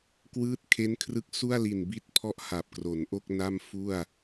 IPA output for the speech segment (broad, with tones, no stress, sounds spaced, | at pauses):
k w ɯː˦˥ t̚ kʰ e˦˥ n kʰ r ɯ˦˥ k̚ s u˥˩ a̯ l i˨˩ n b i˦˥ t̚ pʰ ɔ˦˥ ʔ h a˨˩ p̚ k r o˩˦ n ʔ o˥˩ k̚ n a˥˩ m f u˥˩ a̯